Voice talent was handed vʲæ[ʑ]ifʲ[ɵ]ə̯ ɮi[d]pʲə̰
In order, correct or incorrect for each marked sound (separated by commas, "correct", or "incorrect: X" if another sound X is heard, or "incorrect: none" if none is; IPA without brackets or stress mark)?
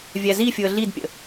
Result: incorrect: z, incorrect: ʊ, correct